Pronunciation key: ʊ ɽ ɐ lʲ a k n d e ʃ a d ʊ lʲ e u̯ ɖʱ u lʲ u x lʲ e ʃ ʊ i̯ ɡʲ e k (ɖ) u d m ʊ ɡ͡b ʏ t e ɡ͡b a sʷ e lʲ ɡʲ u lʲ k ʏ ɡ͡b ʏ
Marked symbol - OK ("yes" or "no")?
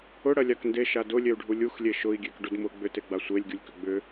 yes